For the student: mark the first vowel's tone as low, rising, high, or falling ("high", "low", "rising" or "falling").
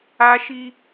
high